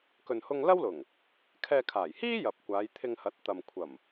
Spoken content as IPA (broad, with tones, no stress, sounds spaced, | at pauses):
k ɵ˨ n h ʊ˧ ŋ l ɐ˥ w l ʊ˨˩ ŋ | kʰ ɛː˧ kʰ aː˨˩ j h iː˥ j ɐ˨ p̚ kʷ aː˨˧ j t̪ʰ ɪ˧ ŋ h ɐ˨˥ t̚ t̪ ɐ˨ m kʷʰ ɐ˨˩ m